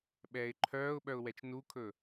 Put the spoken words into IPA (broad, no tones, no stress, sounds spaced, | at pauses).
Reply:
ɓ ɛː ɪ̯ ǃʰ œː ʊ̯ ɓ œ ʊ̯ w ɛ t͡ʃ n u kʰ ɵ